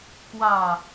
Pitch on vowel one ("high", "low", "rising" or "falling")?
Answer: falling